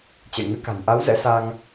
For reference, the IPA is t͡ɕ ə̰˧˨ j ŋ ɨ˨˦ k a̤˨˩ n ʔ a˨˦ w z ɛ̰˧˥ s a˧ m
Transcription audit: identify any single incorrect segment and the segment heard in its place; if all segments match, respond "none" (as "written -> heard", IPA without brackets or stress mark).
m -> ŋ